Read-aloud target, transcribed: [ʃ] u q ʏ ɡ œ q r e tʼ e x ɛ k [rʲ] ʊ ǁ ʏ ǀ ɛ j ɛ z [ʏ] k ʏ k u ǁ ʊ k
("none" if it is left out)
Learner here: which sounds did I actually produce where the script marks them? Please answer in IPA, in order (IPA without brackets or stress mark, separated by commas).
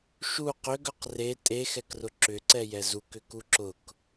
ʃ, r, u